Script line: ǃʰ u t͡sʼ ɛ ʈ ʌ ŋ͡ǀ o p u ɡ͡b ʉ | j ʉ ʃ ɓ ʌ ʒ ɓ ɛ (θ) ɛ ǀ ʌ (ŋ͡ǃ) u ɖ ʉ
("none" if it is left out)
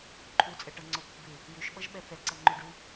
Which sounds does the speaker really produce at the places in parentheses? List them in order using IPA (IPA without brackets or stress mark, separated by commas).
θ, ŋ͡ǃ